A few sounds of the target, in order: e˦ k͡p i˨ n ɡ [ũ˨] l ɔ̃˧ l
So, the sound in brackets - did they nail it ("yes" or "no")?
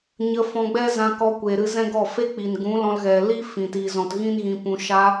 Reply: no